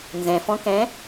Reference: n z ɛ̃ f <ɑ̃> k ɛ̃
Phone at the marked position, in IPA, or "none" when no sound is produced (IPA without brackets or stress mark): ɔ̃